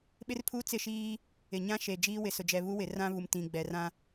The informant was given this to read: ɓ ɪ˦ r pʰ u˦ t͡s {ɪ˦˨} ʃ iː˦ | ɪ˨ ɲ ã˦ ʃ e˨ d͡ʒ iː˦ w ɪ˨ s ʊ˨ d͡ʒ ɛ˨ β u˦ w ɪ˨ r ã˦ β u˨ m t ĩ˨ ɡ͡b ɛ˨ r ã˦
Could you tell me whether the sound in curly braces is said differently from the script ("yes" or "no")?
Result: no